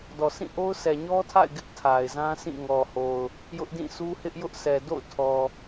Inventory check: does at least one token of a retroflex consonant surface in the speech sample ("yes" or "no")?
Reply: no